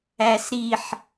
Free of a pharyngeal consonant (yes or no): no